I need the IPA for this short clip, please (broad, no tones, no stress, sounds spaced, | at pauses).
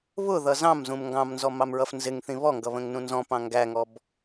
β ʊ ð ʌ z ɑ̃ m z ũ m ŋ ɡ ɑ̃ m n z ɔ m ɑ m ɹ ʌ f n z ɪ ŋ θ ĩ β ɔ ŋ ɡ ʌ β ə̃ ŋ n ũ n z ɔ̃ p ɑ̃ ŋ ɡ æ ŋ ɔ b